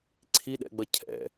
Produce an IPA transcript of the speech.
ǀʰ i ɗ ɛ̰ ɡ͡b ʌ cʰ ɛ̰

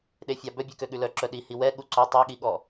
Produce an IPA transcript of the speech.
ɗ e fʲ ɑ b œ bʲ ʉ k ø ɠ ʉ l œ ǁ œ ɗ i h i w ɛ ɠ u ǀ o tˤ i ɠ i ɠ ɔ

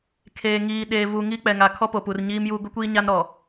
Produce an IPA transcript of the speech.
kʰ eː˨ ŋ iː˨ ɗ eː˨ v u˨ ŋ i˦ k͡p ɛ˨ ŋ a˨ kʰ ɔ˦ p o˨ p u˨ r ɲ iː˦ m j u˦ ɡ ʊ˦ kʷ iː˦ ɲ a˦ n ɾ ɔ˨

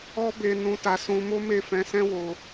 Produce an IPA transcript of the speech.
ɔ˦ b e˧ n ũ˧ t a˧ s ũ˧ m o˦ m e˦˨ f ɛ̃˧ s ɛ̃˦ w o˧

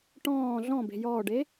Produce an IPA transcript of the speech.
ʈ ɔ̃ː ɮ ɔ̃ b e̤ j ɔː ɖ e

